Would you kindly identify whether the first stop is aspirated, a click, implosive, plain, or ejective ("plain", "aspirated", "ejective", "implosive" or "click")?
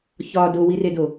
plain